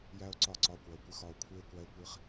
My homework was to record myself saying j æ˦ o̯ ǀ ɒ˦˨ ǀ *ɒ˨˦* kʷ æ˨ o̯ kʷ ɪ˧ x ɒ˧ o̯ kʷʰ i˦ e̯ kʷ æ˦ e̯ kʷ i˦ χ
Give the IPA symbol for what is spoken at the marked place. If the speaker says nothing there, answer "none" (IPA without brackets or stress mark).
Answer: ɒ˨˦